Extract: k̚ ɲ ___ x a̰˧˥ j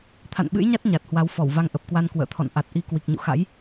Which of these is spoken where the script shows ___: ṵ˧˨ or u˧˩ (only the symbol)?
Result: ṵ˧˨